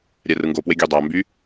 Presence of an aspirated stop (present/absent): absent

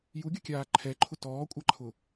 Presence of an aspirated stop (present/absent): present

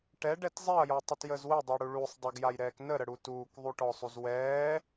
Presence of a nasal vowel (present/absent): absent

